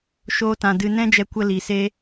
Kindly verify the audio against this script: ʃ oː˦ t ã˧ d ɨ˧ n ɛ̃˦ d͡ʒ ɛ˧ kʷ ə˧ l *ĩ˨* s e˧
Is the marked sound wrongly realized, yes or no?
yes